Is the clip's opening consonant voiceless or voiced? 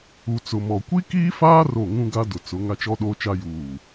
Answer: voiceless